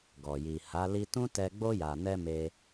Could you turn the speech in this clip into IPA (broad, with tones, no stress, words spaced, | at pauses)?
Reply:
ɡɔ˨ji˨ha˨˦ li˧tũ˦tɛ˧ ɡ͡bo˧ja˨nɛ˧ me˧